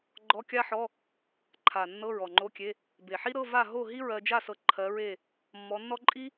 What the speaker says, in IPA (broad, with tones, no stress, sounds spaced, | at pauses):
ɡ͡ǃ ɔ˧˥˧ kʲ a˥ ħ ɔ˧˥˧ | ǃʰ a˨˩ nː ɤ˧˥˧ ɹ ɔ˨˩ ŋ͡ǃ o˧˥˧ kʲ e˧˥˧ | b e˨˩ ħ i˥ ɾ ɤ˧˥˧ v a˥˨ ɦ o˥˨ ɦ i˥ ɹ ɜ˧ d͡ʒ a˥˨ s ɤ˨˥ ǃʰ ɜ˨˥ ɹ e˥˨ | mː ɔ˨˥ nː ɔ˥ ǃʼ i˥